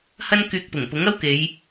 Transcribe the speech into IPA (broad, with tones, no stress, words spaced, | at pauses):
hɐ˥nkyː˧k̚ pʊ˨˩ŋpʊ˨˥ŋ ɐ˥w ke˨˧j